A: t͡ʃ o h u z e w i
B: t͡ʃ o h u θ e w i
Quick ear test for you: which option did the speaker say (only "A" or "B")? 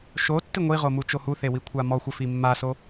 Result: B